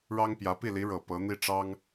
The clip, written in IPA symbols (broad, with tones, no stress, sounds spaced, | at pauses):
ɻ ɑ˥ ŋ p j ä˧˥ p i˥˩ l i˧˥ ɻ ɤ˨˩ p ɤ˧˥ n̪ i˥˩ ʈ͡ʂ ɑ˥ ŋ